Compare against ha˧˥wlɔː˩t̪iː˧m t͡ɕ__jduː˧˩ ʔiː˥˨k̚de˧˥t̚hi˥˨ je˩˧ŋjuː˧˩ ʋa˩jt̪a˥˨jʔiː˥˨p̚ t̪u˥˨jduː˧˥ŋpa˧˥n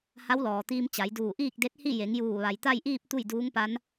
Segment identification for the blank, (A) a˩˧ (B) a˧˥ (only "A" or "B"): A